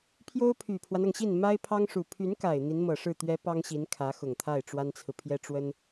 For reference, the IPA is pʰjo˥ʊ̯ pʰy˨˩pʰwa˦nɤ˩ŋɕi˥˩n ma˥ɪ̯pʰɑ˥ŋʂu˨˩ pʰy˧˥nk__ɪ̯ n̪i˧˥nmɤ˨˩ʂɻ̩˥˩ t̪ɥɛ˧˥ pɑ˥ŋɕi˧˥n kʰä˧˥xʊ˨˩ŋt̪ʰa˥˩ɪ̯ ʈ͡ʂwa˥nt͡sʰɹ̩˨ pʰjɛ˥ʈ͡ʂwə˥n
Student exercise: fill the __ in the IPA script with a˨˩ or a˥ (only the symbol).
a˨˩